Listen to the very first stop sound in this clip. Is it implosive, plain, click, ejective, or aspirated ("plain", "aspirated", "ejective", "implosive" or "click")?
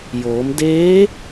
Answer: plain